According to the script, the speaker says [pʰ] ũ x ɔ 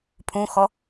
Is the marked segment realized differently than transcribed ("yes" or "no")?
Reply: no